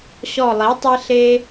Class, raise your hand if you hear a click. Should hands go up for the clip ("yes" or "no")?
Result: no